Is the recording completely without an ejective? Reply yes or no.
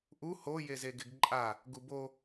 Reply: no